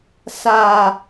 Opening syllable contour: low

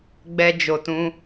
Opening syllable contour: low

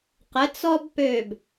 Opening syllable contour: rising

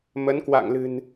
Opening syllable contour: rising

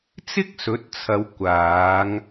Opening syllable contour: high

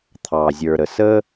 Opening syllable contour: low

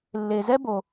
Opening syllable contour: low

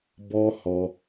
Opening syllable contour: high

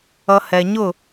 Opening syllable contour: high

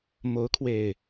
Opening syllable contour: rising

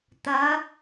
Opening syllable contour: rising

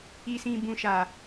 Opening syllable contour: low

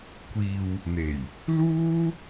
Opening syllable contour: low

